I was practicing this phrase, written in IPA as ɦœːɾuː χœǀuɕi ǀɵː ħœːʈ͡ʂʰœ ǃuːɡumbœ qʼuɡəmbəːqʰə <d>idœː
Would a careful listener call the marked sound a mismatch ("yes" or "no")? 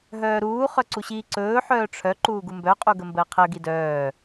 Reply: yes